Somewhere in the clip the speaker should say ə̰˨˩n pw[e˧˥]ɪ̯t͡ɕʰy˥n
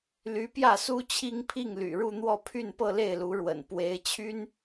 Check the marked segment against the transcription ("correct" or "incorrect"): correct